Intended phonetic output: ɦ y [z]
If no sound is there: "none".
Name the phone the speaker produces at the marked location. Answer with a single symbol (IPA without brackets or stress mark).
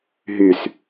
s